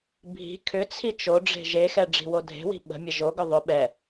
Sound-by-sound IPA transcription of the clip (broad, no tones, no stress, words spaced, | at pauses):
bʱi̤ kʰʏt͡sʰi t͡ʃoɖ͡ʐe̤ ʒexɛ ɖ͡ʐi̤wodʱe̤wi̤ ɓə̤mʲə ʒoɡʏ ðˤʏ ɓɛ